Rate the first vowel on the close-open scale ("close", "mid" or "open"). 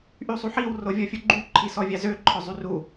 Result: close